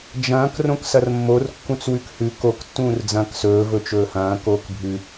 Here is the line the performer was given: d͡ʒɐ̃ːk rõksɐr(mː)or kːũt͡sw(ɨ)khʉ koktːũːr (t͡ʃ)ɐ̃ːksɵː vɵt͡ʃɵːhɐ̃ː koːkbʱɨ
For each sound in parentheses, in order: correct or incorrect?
correct, incorrect, incorrect

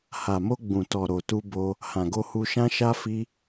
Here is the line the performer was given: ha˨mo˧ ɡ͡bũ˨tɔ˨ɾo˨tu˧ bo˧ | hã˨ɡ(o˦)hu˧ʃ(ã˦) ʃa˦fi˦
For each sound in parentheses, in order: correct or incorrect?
incorrect, correct

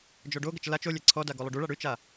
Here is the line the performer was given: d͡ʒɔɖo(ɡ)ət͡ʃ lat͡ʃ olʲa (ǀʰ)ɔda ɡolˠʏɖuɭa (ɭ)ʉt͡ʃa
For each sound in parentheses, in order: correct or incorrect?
correct, correct, incorrect

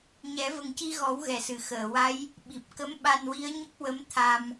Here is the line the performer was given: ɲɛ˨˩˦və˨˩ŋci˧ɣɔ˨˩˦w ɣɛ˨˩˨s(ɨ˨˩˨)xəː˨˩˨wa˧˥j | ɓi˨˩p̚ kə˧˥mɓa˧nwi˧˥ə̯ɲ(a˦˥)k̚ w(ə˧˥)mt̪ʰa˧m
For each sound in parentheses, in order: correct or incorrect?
correct, incorrect, correct

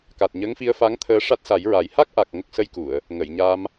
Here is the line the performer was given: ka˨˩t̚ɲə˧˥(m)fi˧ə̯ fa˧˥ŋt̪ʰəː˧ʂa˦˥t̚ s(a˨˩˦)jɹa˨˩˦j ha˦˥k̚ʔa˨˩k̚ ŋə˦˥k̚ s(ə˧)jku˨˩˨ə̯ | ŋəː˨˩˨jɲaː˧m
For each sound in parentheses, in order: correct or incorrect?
incorrect, correct, correct

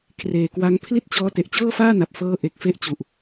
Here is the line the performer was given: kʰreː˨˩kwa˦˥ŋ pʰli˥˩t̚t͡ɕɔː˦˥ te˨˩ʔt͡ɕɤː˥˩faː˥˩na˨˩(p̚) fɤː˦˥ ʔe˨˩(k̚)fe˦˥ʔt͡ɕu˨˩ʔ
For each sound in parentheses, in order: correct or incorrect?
correct, correct

